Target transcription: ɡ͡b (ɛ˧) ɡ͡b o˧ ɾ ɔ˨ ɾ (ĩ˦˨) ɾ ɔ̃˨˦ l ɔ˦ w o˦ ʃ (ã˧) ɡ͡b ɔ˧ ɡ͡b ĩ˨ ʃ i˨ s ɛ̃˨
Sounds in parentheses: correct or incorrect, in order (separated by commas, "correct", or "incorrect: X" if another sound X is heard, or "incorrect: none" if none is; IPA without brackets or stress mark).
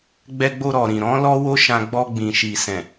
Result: correct, incorrect: ĩ˨, correct